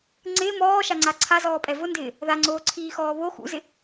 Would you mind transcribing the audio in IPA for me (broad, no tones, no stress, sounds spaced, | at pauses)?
ŋ͡ǀ ɪː m ɔː ʃ a ŋ͡ǀ a ǀʰ a z ɔː pʼ ɛ v ʊ n d ɪː | ð a ŋ͡ǀ oː ǀʰ iː x ɔː β o x ṵ z ɪ